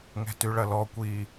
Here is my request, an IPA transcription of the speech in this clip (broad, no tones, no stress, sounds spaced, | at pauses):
ŋ ɛ̤ t y ɭ ɐ l ɔ kʷ i